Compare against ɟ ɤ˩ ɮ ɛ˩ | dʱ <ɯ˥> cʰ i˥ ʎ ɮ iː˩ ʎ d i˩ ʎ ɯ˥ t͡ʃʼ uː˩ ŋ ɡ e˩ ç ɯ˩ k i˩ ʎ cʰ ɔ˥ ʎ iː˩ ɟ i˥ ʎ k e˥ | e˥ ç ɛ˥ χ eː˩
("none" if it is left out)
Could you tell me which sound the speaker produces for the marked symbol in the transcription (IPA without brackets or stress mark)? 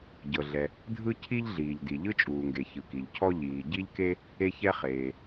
ɯ˥